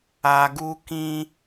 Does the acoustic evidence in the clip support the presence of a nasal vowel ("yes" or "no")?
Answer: yes